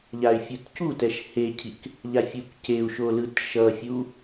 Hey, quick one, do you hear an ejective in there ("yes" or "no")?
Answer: no